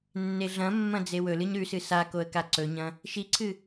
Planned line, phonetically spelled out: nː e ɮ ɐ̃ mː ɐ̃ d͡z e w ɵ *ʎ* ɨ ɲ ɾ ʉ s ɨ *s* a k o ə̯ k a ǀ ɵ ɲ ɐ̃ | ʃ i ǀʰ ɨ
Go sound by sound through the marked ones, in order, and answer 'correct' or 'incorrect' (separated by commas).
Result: incorrect, correct